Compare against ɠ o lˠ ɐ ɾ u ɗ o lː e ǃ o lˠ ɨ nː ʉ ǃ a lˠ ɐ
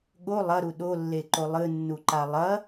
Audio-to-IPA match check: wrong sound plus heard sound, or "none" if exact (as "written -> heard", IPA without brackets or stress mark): ʉ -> u